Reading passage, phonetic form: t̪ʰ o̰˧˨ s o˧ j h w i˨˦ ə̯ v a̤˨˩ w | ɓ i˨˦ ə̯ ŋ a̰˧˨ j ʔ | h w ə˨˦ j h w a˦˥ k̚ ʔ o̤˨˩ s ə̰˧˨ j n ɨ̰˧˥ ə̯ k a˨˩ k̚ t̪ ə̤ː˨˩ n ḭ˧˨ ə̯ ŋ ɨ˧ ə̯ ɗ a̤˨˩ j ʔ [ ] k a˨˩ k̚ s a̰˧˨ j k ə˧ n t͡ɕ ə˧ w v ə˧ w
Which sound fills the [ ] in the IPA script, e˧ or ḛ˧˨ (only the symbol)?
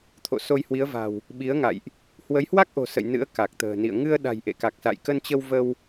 ḛ˧˨